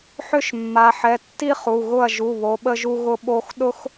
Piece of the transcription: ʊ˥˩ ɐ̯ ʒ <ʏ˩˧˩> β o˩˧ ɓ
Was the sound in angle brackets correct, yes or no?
no